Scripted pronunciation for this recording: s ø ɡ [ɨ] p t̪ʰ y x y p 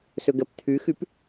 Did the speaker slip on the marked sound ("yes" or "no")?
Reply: yes